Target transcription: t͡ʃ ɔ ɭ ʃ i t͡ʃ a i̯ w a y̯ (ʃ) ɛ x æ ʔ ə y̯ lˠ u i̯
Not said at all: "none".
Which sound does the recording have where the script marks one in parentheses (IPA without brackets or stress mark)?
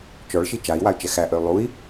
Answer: t͡ʃ